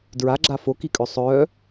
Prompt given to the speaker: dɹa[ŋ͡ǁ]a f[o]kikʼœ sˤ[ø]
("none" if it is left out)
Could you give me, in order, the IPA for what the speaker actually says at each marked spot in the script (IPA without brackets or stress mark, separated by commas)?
ɡ͡ǁ, o, œ